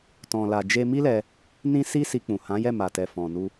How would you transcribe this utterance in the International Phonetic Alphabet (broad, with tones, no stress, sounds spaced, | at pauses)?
t ɔ̃˨ l a˨ d͡ʒ e˧ m i˦ l ɛ˧ | n ĩ˦ s i˦ s i˧ k͡p ũ˨ h ã˨˦ j ɛ˦˨ m a˨ t ɛ˨ f ɔ̃˨ n u˧